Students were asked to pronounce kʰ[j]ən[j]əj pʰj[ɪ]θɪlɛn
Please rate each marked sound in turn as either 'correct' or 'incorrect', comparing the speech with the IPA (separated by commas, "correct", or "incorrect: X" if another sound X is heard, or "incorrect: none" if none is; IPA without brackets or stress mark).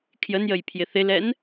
correct, correct, correct